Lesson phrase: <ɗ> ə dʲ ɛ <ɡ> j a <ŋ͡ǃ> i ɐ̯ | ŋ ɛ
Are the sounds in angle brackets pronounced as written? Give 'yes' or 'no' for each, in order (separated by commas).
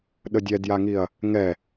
yes, no, no